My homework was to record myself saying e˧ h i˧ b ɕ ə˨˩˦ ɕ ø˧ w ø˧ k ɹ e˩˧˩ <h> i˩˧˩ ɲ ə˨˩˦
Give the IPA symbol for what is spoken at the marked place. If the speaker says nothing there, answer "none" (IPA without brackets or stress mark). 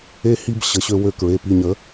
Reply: p